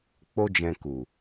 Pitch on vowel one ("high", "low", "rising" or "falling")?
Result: high